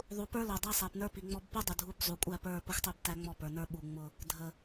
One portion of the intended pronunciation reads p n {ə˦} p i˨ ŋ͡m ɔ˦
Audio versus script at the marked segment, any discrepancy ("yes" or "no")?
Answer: yes